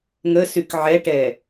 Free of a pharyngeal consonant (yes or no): no